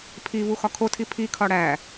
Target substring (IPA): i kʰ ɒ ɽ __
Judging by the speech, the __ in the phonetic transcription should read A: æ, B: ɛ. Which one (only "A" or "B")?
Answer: A